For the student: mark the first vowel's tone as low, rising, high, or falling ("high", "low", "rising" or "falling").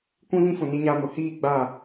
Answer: high